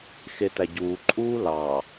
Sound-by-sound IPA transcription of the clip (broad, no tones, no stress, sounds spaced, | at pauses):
x e t æ ɟ uː ǃʼ uː l ɑ